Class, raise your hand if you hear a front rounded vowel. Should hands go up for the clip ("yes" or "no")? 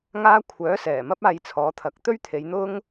yes